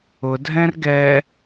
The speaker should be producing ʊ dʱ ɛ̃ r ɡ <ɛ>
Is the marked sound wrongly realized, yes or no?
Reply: no